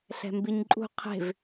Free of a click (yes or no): no